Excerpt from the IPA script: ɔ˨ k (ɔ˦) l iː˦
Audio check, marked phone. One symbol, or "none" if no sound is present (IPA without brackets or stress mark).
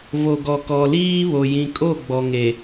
ɔ˨